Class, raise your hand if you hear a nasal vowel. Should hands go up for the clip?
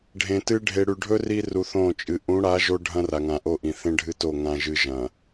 yes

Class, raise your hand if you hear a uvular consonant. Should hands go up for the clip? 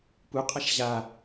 yes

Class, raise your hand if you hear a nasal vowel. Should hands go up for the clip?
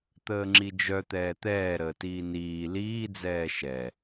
no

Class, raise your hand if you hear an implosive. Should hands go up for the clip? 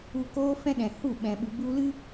yes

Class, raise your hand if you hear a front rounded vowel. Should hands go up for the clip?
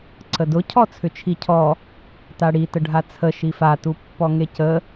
yes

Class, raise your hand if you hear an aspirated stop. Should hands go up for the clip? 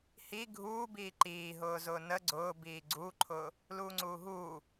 yes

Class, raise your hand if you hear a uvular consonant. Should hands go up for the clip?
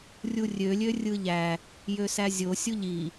no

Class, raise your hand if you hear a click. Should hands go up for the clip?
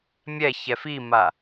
no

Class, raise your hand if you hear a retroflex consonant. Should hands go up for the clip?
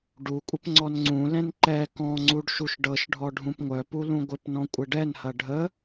yes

